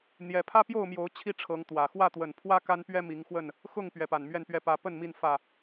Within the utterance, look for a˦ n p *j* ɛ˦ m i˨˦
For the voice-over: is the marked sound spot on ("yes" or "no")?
no